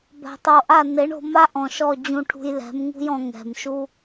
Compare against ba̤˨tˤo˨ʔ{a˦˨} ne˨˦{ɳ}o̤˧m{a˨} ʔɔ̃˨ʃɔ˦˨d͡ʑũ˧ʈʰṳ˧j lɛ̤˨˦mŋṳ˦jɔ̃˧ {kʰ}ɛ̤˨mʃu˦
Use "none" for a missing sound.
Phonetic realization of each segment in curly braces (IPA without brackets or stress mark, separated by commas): a˦˨, ɳ, a˦, ŋ